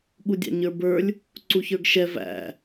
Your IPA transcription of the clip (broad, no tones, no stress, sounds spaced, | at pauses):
ɠ u dʲ ɑ̰ ɲ ə˞ b ə˞ lʲ | ǀ u ç ə˞ ɡ ʃ ɛ v æ̰